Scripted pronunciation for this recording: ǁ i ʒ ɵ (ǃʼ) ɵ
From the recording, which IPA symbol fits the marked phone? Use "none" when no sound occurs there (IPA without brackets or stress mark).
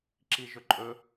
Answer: ǃʼ